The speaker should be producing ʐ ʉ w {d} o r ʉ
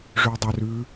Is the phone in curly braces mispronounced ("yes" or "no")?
yes